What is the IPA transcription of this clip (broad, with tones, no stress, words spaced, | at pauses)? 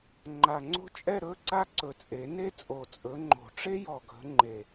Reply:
ŋ͡ǃa˨˩ŋ͡ǀo̤˥t͡ʃʼɛ˥˧ɾɵ˧˥˧ ǀa˥˧ǀɵ˨˩t͡sʼe˨˩˦ ne˥t͡sʼo˨˩t͡sʼɵ˨˦ŋ͡ǃo̤˨˩˦ ʈ͡ʂe˥jɔ˨˩ɡʱə̤˨˦ ŋ͡ǃe˨˩